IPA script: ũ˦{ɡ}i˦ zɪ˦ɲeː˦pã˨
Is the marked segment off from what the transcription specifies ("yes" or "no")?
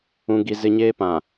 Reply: no